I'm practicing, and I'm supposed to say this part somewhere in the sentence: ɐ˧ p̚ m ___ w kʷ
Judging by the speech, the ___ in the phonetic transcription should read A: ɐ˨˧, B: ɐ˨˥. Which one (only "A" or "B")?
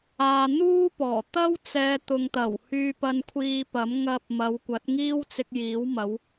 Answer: A